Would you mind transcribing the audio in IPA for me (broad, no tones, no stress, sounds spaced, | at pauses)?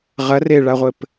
ʁ ɐ r e ɭ a ʁʷ ɘ p